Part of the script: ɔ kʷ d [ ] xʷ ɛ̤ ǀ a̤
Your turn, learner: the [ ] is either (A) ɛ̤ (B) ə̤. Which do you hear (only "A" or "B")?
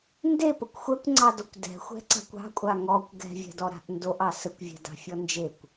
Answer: A